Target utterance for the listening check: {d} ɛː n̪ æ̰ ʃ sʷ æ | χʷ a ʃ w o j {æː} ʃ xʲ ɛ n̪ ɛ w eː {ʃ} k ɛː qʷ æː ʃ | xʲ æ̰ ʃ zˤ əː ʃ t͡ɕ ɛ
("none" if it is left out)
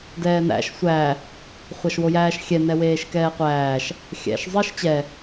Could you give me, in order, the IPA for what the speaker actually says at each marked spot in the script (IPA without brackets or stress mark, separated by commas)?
d, æː, ʃ